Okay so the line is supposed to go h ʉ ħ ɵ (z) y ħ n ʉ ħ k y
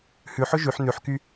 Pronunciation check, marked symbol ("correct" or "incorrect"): incorrect